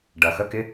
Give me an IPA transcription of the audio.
ɖ ɐ˩ x ə˧˥˧ k ɪ˧˥˧

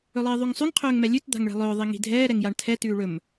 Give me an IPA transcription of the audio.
ɵ lˠ iː ðˤ ʉ ŋ sˤ ʉ ŋ qʰ ɵː ŋ m ɛ lʲ ʉ t d̪ a̤ ŋ ɭ ɛ̤ lˠ ɵː ðˤ i ŋ i̤ dʱ ɛː ɾ ɛ ŋ j a ɳ tʰ ɛ t ʉː ɭ ɵ m

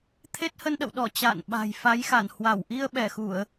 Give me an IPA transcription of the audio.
t̪ʰ e˦˥ t̚ h ə˧ n ɗ ə̰˧˨ w ɗ ɔ˧˩ t͡ɕ a̰ː˧˨ n ɓ a̤˨˩ j f a˨˦ j x a˧˩ n h w a˧˩ w ʔ i˧ ə̯ ɓ ɛ˧˩ x u˧˩˨ ə̯

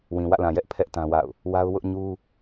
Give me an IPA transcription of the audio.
w ĩ˨ w ä̰˦˨ l ã˨ j ɛ˦ ʔ pʰ ɛ˦ ʔ t ã˦ w a̰˦˨ ʊ̯ | w a˦ ʊ̯ w ʊ˦ ʔ ɲ u˦

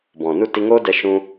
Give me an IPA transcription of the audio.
b ɔ̃˨ n u˦˨ t i˧ ŋ oː˦ d ɛ˧ ʃ ũ˧

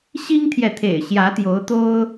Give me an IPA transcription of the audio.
ɕ i˦ ŋ t̪ʰ j ɛ˨ t̪ʰ ḛ˨˩ ɪ̯ ɕ j ä˨˦ t̪ j o˨˦ ʊ̯ t̪ o˦ ʊ̯

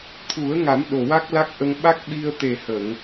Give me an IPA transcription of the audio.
t̪ʰ u˨˩˦ ə̯ ŋ a˨˩˦ m ɗ o˨˩ w a˦˥ k̚ l a˦˥ k̚ ʔ ə˧ ŋ ɓ a˦˥ k̚ ɓ i˧ ə̯ t̪ e˨˩ h ə˨˩˨ ŋ

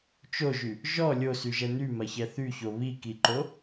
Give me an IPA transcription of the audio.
t͡ʃ o ʒ y | ʒ ɔ lʲ o s y ʒ ɛ n y m ɐ ç ɛ θ y ç o β i k i ǃ o

